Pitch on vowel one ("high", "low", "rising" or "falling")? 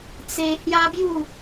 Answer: high